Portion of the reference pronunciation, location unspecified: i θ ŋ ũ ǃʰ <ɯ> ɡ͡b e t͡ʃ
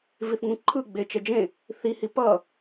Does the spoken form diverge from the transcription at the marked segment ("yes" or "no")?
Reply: no